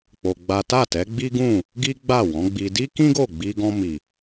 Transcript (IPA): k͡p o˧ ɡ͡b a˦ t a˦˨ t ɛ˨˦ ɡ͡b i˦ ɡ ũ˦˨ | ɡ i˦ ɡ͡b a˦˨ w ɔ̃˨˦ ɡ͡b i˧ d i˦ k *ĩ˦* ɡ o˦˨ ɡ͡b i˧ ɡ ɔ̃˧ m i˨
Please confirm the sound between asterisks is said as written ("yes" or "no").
yes